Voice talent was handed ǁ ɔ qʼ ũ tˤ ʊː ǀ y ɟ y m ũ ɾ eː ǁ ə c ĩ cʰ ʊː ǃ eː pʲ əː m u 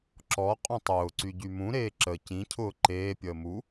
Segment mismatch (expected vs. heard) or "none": none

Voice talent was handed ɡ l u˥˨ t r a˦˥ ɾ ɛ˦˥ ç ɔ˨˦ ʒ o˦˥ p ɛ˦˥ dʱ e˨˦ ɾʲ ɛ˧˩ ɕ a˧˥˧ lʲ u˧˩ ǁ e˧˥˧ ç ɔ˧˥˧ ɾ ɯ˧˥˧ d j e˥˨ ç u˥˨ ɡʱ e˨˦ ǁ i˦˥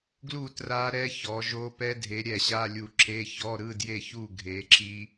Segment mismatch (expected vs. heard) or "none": none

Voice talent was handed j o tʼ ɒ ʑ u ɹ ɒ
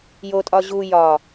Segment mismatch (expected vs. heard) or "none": ɹ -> j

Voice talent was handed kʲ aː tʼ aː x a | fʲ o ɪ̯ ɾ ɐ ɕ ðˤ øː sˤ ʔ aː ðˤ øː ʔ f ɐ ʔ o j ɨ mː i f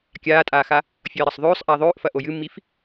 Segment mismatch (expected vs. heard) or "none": ɕ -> sˤ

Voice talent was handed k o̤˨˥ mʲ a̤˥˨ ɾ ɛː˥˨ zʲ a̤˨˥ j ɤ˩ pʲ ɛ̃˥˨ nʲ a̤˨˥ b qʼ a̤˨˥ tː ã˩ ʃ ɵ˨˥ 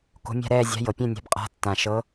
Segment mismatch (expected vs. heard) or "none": ɵ˨˥ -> ɤ˨˥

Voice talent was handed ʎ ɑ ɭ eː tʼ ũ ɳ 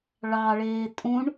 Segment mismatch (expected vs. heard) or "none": ʎ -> ɭ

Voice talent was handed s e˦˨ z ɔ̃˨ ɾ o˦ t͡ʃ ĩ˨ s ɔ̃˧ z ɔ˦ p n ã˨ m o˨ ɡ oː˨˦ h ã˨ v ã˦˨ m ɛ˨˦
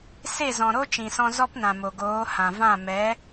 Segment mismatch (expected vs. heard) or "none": none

